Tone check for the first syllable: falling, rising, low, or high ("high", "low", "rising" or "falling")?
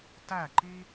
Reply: falling